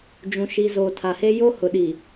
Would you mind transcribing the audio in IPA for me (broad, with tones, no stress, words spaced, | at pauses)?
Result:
d͡ʒũ˨ʃi˨ zoː˨tʰa˨he˦ jo˦ hʊ˨ɗi˨